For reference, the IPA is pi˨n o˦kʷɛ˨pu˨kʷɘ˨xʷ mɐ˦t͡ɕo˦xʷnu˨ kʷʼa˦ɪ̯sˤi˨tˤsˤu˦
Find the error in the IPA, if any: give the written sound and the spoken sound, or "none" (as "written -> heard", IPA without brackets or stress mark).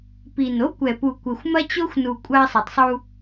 none